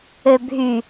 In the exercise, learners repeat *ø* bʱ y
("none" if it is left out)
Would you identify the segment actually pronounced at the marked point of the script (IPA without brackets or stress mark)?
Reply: ø